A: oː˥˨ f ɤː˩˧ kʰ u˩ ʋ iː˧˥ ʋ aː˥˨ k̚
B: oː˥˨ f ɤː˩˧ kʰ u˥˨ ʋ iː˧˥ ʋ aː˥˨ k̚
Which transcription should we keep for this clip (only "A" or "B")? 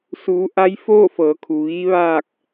A